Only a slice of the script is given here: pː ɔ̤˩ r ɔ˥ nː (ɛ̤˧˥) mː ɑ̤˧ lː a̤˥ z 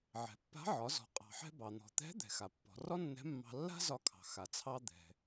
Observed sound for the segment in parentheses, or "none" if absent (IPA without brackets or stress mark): ɛ̤˧˥